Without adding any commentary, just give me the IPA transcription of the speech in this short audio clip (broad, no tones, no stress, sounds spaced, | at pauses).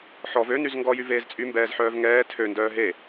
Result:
ħ ɔ v ø n y z ŋ ɡ ɔ j y v eː z t͡sʼ y m b ɛː z ħ œː v ŋ ɛː tʰ ø n d œː ɦ e